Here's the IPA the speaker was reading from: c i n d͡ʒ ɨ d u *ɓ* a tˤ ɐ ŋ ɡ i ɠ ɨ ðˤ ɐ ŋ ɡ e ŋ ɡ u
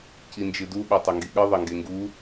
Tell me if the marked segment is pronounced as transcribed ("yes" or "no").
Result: yes